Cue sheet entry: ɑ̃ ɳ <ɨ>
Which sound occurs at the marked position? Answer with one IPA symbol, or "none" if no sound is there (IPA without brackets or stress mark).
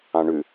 ʉ